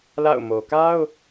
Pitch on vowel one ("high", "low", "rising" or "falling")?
falling